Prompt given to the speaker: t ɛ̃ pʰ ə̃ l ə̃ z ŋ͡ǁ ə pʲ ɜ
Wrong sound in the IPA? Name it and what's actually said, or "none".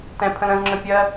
ə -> ə̃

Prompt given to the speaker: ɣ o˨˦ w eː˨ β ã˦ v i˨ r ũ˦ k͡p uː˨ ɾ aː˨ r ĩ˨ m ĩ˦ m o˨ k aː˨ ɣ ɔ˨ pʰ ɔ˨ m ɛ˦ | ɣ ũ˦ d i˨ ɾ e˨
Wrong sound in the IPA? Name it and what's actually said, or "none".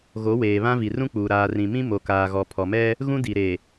none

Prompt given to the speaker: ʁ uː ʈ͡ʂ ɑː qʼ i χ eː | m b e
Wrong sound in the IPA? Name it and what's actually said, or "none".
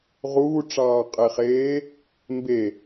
none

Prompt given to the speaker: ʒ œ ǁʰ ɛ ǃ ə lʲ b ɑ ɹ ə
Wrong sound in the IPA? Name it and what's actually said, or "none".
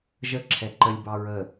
œ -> ə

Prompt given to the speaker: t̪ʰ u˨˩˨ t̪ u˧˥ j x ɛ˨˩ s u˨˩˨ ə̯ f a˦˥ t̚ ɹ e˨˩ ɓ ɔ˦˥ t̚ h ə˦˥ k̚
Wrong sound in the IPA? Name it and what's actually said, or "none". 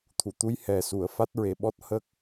x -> h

